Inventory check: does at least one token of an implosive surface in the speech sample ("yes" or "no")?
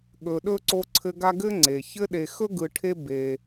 yes